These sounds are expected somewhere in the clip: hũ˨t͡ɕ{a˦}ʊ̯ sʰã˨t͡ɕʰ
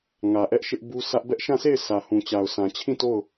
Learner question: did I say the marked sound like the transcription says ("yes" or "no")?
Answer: no